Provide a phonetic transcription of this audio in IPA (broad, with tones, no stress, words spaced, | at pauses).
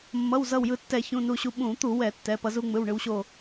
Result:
mːʌ˩˧˩wzʌ˧˩wjɯ˧˩tːɛ˧˩˧ çũ˩˧˩nu˧˩ɕu˧˩ ɓũ˧˩˧t̪u˧˩˧ wɛ˧˩˧tːɛ˩˧˩pʌ˧ zu˧ŋ͡mɯ˩˧˩w ɳɯ˧wɕo˧˩